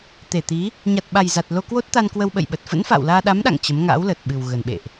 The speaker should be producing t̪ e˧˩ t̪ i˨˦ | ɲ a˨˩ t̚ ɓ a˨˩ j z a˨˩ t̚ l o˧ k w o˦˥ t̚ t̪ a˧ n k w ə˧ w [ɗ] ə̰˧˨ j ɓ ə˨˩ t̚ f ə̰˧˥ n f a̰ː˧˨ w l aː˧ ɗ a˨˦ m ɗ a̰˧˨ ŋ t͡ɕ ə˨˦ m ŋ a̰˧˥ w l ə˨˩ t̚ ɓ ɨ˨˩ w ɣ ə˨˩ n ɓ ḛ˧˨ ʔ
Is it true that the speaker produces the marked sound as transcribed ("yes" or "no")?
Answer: no